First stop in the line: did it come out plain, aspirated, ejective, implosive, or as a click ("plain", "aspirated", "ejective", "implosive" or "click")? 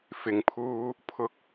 aspirated